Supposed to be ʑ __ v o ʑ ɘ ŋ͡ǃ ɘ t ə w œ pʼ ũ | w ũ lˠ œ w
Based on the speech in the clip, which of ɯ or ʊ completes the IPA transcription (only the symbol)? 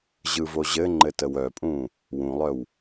ɯ